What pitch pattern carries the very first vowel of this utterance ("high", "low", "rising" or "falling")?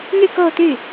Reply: falling